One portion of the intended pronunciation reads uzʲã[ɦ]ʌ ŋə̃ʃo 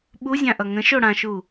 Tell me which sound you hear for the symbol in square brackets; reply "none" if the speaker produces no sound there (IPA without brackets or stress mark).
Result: ʔ